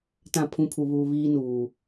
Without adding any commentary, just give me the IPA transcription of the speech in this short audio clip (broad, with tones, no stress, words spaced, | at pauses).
tã˦˨pʰũ˦pʰu˨βuː˨ βiː˦nuː˨